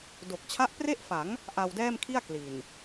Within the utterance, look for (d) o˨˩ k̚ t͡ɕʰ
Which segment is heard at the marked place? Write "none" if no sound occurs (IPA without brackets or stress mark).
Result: d